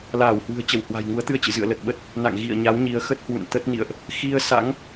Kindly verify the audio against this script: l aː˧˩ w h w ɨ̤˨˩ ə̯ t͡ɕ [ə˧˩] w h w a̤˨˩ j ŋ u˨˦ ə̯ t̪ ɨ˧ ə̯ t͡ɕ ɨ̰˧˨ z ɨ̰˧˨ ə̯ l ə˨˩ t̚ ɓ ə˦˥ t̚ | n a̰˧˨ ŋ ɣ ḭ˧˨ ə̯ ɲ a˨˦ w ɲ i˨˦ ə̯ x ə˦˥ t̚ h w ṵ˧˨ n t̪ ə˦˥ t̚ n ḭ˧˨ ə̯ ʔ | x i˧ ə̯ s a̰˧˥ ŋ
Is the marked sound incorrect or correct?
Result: correct